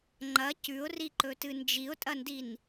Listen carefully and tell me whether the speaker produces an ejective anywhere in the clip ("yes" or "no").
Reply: yes